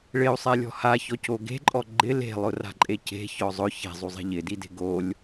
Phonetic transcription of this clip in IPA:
ɭ ɪ u̯ sˤ ɛ lʲ ɔ̤ h a ç ɔ c o ɡ e̤ ǃʼ ɔ ɡ͡ǃ ɪ l e̤ lˠ ʊ r a̤ ǃʼ e c e̤ ç ɔ zˤ ʊ ç e̤ zˤ u zˤ e̤ ʎ ɪ d i d e̤ ɡ o lʲ

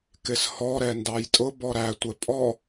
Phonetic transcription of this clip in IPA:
k ɪ s h ɔ ɾ ɛ n d ɑ j tʼ ʊ b ɔ ɾ æ tʷ ɛ pʼ ɔ

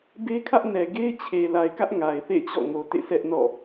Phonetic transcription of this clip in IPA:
b e˦ kʰ ä˦ ʔ n ɛ˨ ɡ e˦ ɪ̯ t͡ɕʰ e˨ l a˨ ɪ̯ k ä˦ ʔ ŋ a˨ ɪ̯ θ ḛ˦˨ ɪ̯ t͡ɕ ɔ̰˦˨ ŋ o˨ t ḛ˦˨ sʰ ɛ˦ ʔ n ɔ̰˦˨

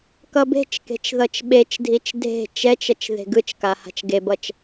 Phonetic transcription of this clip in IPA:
k ʌ b e̤ t͡ʃ k e̤ t͡ʃ ð ʌ t͡ʃ ɓ e t͡ʃ dʱ i t͡ʃ dʱ e̤ t͡ʃ ɛ t͡ʃ ʌ t͡ʃ ð e̤ ɡ ɯ t͡ʃ k a h a̤ t͡ʃ ɡ e b ʌ t͡ʃ

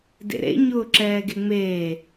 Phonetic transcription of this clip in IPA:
d ḛ ɾ ḛ ɲ ʊː ǁ ɛː ɡ e ŋ͡m eː

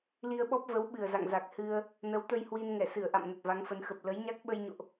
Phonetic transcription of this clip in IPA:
l i˧ ə̯ ɓ ɔ˦˥ p̚ v ə˨˦ w ɓ ɨ˨˩ ə̯ z a̰˧˨ ŋ z a˨˩ k̚ h ɨ˧ ə̯ | n ə˨˦ w t̪ ə˧ j h w i˧ n ŋ ɛ˧˩ s ɨ˧˩ ə̯ ʔ a̰˧˨ m n ə˨˩ t̚ v a˨˦ ŋ f ə˨˦ n x ə˨˩ p̚ l ə˨˦ j ɲ a˦˥ k̚ ɓ ə˧ j ɲ o̰˧˨ ʔ

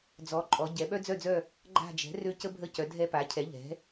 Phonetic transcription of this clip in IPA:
d͡z ɔ˩˥ ǃʼ ɔ˩˧ ɟ ɛ˩˧ ɓ œ˦ d͡z œ˦˨ d͡z œ˦˨ | ɡ͡ǃ a̤˦˨ d͡ʒ ɛ̤˩˥ r ø˦ c ə˦ bʱ ə˦˨ c œ˩˧ dʱ ɛ˦ p a˩˥ cʰ ɛ˩˥ ʎ ɛ̤˩˥

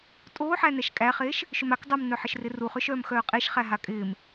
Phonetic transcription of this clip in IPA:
tʼ oː ħ æ n̪ ɛ ʃ kʼ æ χ eː ʃ | ʃ ʏ m a k dˤ œ m n̪ œ ħ ɪ ʃ r ɪ r u χ ʏ ʃ œː m x œː qʼ e ʃ χ æ ɦ a kʼ ɪː m

